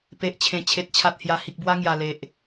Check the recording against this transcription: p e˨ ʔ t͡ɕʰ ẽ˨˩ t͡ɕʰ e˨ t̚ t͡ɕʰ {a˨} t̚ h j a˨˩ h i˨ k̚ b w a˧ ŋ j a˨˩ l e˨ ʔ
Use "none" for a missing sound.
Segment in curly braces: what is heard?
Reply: a˨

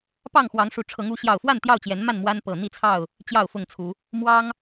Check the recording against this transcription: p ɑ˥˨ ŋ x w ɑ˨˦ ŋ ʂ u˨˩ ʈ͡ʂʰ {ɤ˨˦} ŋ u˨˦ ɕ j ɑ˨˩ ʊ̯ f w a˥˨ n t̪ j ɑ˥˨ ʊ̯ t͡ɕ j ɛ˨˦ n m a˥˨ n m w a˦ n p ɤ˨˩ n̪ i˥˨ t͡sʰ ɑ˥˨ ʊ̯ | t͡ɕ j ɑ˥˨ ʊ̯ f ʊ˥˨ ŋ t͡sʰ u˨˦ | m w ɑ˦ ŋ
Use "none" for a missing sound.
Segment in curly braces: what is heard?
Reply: ɤ˨˦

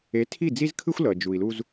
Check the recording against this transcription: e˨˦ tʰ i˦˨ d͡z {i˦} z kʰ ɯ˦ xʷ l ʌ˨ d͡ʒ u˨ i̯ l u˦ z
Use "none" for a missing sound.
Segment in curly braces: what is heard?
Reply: i˦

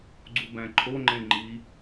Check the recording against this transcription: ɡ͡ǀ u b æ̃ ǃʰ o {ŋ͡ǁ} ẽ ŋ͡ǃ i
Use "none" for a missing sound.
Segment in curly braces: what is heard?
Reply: ŋ͡ǃ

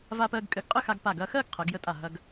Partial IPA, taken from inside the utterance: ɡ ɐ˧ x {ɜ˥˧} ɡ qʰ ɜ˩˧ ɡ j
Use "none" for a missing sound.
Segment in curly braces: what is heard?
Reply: ɜ˥˧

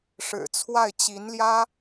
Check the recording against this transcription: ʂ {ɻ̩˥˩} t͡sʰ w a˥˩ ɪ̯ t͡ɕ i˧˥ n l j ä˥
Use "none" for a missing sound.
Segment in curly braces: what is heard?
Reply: ɻ̩˨˩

